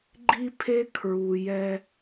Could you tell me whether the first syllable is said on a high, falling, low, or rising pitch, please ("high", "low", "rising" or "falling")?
high